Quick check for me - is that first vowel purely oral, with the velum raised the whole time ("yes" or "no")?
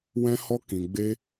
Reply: no